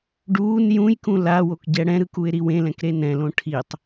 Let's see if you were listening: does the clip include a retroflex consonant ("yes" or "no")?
yes